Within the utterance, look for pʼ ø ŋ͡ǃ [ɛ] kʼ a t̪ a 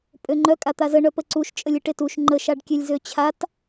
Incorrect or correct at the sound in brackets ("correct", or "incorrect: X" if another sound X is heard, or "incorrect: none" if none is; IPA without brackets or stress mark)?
incorrect: œ